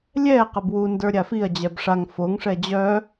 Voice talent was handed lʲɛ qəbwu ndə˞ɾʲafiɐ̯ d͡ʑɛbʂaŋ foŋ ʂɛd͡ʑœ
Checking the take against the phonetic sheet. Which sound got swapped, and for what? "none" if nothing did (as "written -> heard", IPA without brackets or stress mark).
none